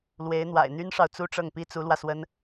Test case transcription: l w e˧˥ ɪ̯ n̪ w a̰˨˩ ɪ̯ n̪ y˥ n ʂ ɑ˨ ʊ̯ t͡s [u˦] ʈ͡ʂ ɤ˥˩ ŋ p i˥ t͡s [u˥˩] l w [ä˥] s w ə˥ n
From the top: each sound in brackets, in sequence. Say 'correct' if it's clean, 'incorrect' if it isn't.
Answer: incorrect: u˥, incorrect: u˧˥, incorrect: ä˧

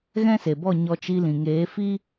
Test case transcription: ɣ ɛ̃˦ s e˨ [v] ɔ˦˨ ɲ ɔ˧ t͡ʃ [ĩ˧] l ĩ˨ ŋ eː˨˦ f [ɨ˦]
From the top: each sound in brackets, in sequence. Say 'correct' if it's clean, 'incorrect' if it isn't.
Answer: incorrect: b, incorrect: i˧, incorrect: i˦

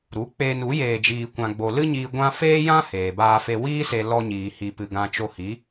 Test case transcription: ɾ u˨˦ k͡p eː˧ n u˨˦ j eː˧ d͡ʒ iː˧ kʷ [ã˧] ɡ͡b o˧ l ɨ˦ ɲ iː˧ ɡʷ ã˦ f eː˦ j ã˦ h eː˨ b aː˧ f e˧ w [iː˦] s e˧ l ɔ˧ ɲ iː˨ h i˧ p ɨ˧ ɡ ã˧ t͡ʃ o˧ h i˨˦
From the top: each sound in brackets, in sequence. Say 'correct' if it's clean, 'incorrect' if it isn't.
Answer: correct, correct

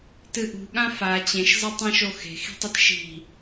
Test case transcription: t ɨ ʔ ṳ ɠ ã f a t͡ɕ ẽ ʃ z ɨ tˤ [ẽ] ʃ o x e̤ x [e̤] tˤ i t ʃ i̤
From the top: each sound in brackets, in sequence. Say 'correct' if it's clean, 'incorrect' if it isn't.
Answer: incorrect: ĩ, incorrect: i̤

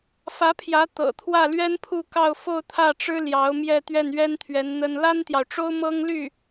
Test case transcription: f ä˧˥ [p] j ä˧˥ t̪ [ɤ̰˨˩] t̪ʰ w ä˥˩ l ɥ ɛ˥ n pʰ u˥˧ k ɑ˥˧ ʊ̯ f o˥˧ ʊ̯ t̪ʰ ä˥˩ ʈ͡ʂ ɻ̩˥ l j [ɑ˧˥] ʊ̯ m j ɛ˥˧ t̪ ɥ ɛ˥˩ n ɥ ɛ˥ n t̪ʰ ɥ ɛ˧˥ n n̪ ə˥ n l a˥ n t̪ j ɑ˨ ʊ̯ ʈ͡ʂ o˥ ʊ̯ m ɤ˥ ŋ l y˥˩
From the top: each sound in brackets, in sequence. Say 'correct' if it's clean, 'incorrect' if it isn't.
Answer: incorrect: pʰ, correct, correct

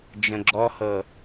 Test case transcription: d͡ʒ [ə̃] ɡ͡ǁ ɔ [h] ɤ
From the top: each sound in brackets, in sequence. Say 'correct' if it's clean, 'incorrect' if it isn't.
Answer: correct, correct

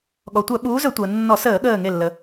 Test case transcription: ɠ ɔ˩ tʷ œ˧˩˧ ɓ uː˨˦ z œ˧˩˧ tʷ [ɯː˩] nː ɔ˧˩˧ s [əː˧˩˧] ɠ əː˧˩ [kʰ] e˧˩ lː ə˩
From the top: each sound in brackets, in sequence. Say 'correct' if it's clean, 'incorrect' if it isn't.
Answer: incorrect: əː˩, correct, incorrect: ŋ

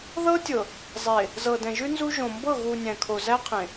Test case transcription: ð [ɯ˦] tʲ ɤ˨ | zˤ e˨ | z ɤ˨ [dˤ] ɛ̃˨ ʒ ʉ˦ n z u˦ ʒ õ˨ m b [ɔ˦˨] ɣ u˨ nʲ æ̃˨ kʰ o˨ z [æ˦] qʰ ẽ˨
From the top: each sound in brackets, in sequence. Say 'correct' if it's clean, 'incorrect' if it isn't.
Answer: incorrect: ɤ˦, incorrect: d, incorrect: ɤ˦˨, correct

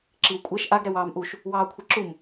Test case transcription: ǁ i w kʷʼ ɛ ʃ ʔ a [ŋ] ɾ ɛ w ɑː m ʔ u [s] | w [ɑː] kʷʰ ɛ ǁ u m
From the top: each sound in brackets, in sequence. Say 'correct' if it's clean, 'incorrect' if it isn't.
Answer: incorrect: ɡ, incorrect: ʃ, correct

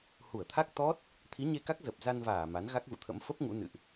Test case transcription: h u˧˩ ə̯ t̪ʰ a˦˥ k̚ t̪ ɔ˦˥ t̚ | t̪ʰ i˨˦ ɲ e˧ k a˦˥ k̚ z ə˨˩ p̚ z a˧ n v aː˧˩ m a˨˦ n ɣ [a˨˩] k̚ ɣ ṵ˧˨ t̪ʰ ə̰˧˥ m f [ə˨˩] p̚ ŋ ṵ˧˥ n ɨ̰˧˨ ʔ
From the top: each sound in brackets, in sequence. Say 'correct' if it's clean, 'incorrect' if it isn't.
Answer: incorrect: a˦˥, incorrect: ə˦˥

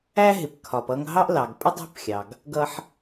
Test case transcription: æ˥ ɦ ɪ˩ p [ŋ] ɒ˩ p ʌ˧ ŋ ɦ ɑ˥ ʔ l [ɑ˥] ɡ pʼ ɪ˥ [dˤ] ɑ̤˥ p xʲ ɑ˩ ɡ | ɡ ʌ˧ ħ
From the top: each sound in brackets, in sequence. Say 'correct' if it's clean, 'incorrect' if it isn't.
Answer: incorrect: kʰ, incorrect: ɑ˩, correct

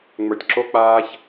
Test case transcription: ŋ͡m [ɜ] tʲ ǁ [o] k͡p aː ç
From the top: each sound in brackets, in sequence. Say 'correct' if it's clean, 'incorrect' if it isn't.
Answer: incorrect: ə˞, correct

